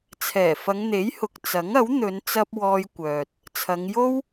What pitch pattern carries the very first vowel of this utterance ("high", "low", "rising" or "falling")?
low